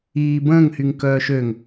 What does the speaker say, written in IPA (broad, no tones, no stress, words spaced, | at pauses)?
iː bə̃ːŋhyŋ kœːʃøŋ